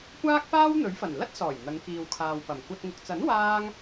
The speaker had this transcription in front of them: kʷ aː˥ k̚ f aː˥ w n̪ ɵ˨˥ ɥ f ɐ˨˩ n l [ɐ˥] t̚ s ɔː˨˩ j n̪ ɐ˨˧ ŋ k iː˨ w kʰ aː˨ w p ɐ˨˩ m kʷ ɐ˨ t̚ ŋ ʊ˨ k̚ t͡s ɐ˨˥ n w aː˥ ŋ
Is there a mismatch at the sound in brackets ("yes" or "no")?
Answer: no